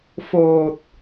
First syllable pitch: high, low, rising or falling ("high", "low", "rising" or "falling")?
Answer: low